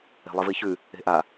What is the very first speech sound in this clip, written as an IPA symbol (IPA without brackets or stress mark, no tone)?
e̤